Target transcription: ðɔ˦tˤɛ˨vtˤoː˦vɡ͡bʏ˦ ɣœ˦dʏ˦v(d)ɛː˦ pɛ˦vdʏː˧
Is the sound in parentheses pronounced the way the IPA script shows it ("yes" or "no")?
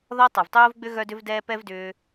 yes